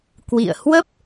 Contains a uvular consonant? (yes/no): no